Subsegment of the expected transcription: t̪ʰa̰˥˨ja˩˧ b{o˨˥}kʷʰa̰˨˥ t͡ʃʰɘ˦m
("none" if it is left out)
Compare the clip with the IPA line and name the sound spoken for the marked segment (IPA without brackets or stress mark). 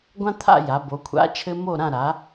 o˩˧